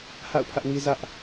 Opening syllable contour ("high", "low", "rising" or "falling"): falling